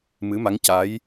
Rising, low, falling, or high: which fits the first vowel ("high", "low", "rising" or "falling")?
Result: rising